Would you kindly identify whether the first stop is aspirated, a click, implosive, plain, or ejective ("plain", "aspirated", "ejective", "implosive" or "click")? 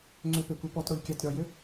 click